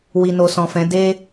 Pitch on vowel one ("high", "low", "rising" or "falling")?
low